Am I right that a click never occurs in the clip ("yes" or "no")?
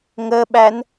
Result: yes